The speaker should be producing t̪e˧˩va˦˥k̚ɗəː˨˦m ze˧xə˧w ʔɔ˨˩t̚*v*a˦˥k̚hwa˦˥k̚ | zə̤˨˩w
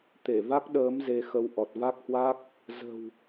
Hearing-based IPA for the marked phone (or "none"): v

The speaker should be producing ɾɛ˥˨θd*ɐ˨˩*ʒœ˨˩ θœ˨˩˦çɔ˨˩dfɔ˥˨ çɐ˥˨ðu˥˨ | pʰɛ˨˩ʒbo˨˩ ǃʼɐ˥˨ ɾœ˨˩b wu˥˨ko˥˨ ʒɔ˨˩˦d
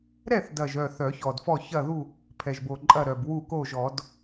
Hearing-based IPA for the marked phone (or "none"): ɐ˨˩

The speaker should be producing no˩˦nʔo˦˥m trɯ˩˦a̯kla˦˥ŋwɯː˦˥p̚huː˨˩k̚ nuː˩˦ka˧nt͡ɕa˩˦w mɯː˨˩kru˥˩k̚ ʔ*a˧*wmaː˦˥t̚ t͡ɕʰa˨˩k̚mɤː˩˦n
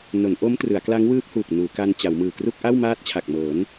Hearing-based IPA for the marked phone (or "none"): a˥˩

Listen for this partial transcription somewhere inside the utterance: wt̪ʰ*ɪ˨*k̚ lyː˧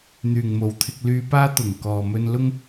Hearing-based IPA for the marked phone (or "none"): ɪ˧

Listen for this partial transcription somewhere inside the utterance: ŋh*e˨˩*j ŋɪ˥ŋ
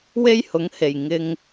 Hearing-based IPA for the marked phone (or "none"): e˨˩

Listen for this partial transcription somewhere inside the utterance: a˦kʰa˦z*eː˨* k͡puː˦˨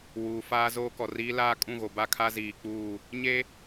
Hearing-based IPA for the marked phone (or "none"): iː˨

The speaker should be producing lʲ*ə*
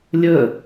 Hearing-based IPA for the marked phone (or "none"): ə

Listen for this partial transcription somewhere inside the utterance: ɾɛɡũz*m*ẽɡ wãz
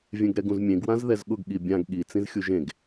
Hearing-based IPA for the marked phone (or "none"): mʲ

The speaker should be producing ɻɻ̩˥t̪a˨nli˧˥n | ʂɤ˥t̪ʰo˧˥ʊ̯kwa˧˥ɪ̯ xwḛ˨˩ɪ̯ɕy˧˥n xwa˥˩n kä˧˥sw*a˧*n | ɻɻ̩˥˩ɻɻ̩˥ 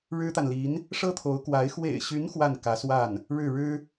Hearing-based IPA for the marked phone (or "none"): a˥˩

